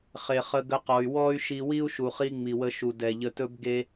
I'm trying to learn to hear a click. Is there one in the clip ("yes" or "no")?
no